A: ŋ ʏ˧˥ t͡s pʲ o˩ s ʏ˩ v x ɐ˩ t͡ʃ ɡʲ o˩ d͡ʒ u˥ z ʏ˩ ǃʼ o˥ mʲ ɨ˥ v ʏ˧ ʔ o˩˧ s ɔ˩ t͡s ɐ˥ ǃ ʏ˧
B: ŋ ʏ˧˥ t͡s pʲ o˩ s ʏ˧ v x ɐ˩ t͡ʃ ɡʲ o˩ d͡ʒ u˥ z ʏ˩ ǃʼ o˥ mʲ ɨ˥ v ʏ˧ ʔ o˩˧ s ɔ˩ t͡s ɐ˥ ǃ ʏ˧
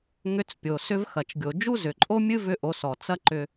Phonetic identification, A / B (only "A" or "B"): B